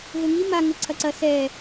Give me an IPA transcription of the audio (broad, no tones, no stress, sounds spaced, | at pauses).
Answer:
ɣ ɘ ŋ i m a ŋ ɘ ǀʰ ɐ ǀ ɐ s ɛ